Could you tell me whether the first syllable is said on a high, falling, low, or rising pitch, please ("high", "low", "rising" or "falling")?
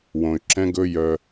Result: low